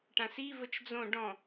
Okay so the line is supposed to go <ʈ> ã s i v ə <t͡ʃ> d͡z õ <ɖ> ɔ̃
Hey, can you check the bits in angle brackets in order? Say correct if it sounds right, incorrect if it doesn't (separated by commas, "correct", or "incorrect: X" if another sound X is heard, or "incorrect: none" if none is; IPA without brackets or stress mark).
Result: correct, correct, correct